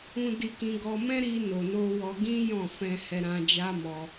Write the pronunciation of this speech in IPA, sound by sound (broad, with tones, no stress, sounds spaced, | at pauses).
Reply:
ũ˧ d i˧ k ĩ˧ ɡ ɔ˧ m ɛ̃˦ ɾ i˧ n o˨ n o˧ w ɔ˧ ɡ ĩ˦ j ɔ̃˦˨ f ɛ̃˧ h ɛ˧ ɾ ã˧ d͡ʒ a˦ m ɔ˧